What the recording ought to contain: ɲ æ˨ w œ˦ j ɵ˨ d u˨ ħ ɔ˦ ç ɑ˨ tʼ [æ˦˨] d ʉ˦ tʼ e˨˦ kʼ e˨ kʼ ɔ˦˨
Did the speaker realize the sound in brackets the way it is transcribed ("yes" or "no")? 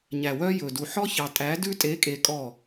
no